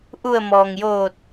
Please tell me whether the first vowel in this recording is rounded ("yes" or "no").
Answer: yes